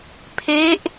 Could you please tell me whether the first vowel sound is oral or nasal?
oral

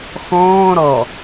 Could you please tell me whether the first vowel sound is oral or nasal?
nasal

